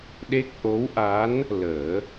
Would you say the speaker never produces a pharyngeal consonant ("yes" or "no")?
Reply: yes